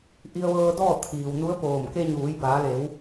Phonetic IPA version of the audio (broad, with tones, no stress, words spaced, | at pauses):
ʔi˧ə̯ʋɤː˧dɔː˥˨ t̪ʰiː˩wnu˧˥ə̯poː˧˩m ke˧ɲuː˩˧j baː˩˧le˩˧w